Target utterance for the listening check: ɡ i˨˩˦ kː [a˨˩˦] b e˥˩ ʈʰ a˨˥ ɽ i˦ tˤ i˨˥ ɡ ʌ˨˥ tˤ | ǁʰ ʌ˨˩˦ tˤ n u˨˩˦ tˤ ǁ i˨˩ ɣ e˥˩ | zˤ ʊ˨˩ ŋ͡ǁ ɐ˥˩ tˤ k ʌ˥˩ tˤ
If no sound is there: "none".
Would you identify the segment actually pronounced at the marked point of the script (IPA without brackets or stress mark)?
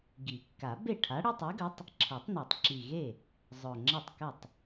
a˨˩˦